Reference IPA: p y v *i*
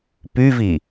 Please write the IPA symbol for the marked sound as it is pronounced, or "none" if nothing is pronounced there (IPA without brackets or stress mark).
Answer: i